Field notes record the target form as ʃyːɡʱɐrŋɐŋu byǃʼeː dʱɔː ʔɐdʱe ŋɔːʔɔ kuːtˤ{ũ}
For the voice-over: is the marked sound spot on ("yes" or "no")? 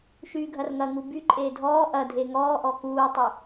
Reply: no